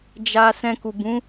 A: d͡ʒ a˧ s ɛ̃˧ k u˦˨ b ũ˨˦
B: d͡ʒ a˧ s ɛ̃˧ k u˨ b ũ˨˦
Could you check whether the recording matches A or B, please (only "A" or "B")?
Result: B